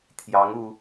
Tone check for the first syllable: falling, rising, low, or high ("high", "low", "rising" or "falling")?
rising